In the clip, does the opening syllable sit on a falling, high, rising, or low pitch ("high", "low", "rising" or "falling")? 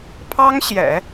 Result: high